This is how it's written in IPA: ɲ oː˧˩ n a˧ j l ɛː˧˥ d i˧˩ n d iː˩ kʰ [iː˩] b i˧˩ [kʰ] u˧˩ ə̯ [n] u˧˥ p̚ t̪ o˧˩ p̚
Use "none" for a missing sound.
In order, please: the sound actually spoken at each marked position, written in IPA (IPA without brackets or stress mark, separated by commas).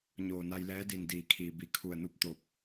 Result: iː˩, kʰ, n